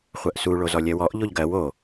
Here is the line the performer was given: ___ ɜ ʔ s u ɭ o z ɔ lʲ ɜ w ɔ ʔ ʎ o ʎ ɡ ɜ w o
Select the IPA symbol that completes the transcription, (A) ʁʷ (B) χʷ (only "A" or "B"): B